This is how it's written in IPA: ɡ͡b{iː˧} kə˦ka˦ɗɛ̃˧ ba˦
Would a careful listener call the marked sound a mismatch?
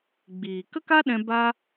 yes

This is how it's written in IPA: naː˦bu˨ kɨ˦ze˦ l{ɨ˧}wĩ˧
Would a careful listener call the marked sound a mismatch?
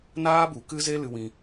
no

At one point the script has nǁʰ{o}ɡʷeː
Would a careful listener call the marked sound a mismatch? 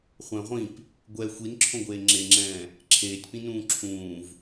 yes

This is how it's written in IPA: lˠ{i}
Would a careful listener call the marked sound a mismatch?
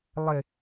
yes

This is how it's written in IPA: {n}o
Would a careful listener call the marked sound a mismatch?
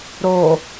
yes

